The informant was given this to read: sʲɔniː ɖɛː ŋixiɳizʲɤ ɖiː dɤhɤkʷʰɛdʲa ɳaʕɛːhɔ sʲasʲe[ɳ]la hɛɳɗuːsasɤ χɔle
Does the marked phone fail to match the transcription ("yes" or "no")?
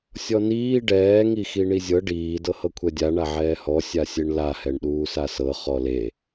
no